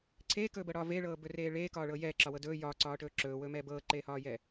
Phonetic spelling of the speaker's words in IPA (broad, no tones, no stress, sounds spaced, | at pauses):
ǀʰ eː k ɵː b ɤ ɽ ɒː v e ɭ ɤː b ɵ r eː ɭ eː k ɒː ɭ ɤː j ɛː ǁ ɒ w ɤ d ɵː j ɒː ǀ ɒː ʈ ɵː ǁ ɵː w ɵː m ɛː b ɤː ǃ eː h ɒː j ɛː